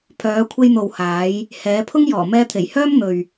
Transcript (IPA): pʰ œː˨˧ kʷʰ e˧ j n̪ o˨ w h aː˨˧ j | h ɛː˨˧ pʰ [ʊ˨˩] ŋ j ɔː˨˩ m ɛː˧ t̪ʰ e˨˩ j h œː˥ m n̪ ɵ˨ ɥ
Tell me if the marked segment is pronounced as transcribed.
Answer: no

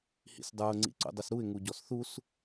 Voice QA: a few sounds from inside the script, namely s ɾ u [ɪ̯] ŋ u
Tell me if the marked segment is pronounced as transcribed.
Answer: yes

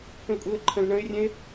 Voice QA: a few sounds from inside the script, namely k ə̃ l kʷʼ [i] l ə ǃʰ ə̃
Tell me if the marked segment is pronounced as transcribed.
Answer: yes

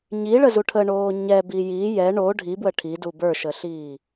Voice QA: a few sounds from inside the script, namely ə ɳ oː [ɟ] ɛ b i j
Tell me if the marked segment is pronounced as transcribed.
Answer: no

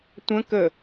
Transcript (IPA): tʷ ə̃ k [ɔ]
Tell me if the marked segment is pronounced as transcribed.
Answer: no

